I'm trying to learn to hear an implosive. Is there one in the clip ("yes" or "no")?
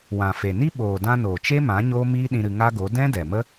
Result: yes